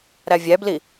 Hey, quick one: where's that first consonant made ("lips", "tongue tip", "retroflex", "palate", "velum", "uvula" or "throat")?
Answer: tongue tip